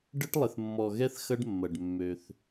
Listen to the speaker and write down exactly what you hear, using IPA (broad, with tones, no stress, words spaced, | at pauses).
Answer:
ɖə˦ʈlˠɪ˨θ mːɔ˨ɣɛ˦θ xɐ˦ɖmːɐ˨ɖ mːø˦θ